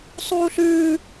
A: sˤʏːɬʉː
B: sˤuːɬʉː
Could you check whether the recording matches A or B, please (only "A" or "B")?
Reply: B